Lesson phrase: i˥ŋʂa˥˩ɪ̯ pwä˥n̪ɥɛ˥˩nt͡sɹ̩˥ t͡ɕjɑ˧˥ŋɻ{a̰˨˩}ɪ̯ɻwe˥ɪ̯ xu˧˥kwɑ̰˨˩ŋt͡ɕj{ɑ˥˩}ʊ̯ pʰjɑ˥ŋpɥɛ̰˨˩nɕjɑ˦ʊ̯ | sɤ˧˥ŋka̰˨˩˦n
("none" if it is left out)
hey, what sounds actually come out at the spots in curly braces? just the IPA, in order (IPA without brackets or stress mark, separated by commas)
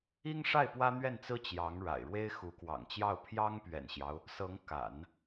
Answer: a̰˨˩, ɑ˥˩